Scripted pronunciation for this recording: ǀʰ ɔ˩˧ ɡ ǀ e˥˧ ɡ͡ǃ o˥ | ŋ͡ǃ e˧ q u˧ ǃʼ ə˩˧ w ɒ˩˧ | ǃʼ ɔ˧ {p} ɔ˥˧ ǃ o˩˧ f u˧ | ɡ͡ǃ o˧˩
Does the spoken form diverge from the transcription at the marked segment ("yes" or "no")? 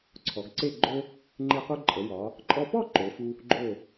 no